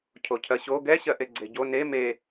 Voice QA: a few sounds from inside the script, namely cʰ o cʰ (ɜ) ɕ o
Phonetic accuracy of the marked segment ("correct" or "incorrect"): correct